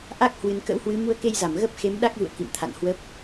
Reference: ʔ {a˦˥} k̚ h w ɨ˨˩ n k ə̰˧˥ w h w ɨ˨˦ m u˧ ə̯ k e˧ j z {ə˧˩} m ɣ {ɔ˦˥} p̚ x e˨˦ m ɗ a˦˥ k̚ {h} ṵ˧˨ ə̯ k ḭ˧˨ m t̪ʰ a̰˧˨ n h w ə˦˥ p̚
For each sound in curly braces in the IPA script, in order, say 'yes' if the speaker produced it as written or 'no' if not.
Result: yes, no, no, no

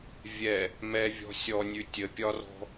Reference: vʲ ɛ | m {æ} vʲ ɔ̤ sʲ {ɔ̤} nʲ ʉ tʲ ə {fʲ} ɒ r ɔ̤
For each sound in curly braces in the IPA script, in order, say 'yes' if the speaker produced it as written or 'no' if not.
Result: no, no, no

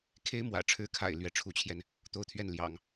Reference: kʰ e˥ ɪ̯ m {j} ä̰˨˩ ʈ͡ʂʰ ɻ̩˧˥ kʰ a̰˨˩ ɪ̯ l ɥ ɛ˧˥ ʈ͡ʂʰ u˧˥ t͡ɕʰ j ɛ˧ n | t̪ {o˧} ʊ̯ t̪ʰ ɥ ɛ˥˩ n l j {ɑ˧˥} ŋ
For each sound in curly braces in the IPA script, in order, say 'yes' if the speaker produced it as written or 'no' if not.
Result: no, no, no

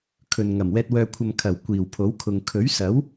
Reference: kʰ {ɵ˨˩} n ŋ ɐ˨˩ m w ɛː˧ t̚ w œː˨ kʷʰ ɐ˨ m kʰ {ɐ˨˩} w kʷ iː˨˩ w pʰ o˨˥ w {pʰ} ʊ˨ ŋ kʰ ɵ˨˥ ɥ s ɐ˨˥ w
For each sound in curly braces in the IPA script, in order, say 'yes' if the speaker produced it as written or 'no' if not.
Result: no, yes, no

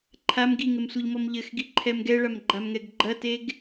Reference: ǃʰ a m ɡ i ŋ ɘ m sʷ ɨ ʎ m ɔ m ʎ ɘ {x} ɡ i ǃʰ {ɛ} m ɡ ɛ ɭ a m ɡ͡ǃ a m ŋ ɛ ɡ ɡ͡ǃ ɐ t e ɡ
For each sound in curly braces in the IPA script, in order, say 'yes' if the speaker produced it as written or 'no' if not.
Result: yes, yes

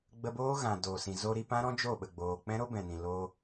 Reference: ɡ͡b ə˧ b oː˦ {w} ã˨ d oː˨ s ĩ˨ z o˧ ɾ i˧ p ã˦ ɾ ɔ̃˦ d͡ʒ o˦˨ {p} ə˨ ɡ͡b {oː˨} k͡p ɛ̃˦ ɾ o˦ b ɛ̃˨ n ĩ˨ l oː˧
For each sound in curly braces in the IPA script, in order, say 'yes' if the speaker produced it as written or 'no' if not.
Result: no, no, yes

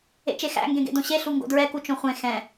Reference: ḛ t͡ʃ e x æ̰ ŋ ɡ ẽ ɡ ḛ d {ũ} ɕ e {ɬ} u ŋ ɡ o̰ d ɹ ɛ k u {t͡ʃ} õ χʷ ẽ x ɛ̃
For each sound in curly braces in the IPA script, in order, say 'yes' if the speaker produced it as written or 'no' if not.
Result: no, yes, yes

